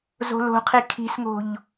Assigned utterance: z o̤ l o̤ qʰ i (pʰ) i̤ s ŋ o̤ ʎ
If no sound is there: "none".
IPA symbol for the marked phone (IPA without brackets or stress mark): kʰ